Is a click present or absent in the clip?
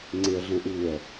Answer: present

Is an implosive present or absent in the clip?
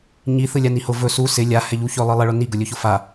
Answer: absent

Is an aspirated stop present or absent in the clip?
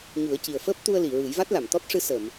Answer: absent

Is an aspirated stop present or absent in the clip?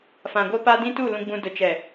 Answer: absent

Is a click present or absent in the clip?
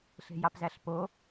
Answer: absent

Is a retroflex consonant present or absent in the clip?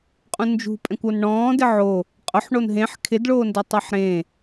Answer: present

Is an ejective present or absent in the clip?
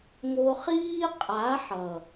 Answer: present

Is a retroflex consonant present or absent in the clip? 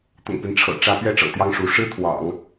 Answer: present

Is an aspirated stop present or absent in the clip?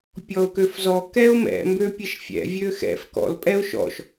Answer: absent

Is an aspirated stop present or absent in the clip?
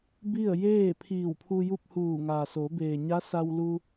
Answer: present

